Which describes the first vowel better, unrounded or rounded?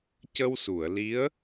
unrounded